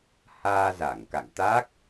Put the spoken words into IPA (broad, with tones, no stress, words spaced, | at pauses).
haː˧za˧˩ŋka̰˧˨ŋt̪a˦˥k̚